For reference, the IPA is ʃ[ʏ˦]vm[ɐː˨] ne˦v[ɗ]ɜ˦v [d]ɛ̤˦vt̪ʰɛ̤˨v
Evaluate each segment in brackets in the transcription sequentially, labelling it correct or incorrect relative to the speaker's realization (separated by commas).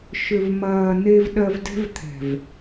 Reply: incorrect, correct, correct, correct